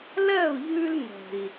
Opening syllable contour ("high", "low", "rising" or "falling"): falling